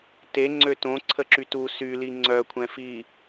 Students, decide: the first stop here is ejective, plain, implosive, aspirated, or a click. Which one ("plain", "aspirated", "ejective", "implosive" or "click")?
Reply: plain